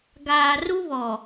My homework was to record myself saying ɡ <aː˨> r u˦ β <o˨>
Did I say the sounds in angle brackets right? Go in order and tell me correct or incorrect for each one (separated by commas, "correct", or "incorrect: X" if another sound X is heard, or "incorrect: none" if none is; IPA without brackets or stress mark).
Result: correct, incorrect: ɔ˨